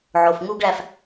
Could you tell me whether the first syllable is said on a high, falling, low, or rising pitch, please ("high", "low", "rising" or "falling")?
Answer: low